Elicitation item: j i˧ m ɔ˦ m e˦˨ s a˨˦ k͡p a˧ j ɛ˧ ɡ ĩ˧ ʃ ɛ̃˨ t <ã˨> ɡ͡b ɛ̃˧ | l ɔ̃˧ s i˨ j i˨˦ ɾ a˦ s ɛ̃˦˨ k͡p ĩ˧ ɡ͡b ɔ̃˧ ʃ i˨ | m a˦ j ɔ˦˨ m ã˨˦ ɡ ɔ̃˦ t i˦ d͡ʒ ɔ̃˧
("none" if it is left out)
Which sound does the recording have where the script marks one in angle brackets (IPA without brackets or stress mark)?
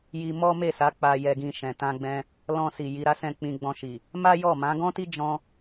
ã˧